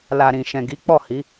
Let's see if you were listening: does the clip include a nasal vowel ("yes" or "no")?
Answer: yes